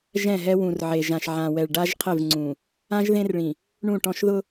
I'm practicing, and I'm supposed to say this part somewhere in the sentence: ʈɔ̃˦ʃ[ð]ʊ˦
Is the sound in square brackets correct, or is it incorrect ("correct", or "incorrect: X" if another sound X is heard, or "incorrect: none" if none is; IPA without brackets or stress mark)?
correct